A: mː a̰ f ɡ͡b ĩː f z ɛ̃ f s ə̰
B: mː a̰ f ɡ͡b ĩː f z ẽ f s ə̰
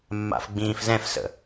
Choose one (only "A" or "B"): A